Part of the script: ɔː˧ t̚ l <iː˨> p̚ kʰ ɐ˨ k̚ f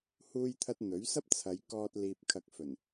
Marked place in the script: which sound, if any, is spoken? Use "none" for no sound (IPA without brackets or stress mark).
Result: iː˨